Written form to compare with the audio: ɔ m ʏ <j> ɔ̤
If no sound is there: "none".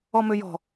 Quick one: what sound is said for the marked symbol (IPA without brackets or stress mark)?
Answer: j